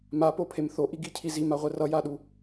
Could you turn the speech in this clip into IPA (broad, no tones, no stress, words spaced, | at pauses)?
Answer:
mapopʰem θoʔiɡicʰi zimaʁʷɛ rʌjaɗu